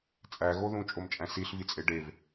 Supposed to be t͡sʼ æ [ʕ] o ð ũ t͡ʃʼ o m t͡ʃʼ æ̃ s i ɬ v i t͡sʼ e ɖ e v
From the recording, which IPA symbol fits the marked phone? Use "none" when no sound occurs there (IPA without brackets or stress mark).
ɣ